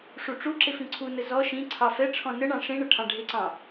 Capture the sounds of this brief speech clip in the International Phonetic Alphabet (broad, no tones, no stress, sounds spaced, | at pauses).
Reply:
ʂ u ʈ͡ʂ u ǁ ɪ f ĩ ǀʰ u n ə z ɔ ʃ ĩ ǀʰ ɑ f ɛ ʈ͡ʂʰ ɔ̃ n ə ɳ ɑ̃ ʂ ĩ ɳ ə ʈʰ ɑ̃ ɖʱ ɪ ǀ ɑ̃